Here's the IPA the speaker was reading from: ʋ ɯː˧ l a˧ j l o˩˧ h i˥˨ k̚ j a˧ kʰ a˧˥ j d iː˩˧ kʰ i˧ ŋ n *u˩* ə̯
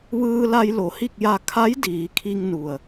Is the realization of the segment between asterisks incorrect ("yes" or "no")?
no